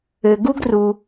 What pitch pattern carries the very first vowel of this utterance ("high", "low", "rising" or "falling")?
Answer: low